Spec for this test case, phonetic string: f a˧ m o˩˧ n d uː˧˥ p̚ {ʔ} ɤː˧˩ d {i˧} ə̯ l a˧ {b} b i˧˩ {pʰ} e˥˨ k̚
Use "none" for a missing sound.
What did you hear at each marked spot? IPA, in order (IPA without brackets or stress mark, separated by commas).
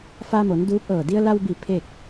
ʔ, i˧, w, pʰ